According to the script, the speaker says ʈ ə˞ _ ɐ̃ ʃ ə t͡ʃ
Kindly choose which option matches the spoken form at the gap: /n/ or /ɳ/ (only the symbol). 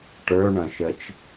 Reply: ɳ